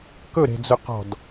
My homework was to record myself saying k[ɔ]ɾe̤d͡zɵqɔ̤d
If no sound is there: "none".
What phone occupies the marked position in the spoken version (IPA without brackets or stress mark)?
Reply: ɵ